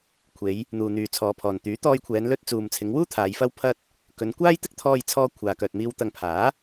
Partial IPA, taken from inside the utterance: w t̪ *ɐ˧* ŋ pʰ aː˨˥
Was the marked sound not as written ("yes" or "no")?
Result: no